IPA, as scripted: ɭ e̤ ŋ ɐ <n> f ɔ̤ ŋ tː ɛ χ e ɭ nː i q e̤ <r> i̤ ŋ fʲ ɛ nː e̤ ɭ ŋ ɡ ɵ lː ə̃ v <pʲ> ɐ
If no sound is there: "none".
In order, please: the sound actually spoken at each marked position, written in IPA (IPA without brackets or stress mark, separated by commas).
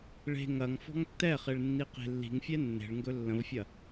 ŋ, lː, fʲ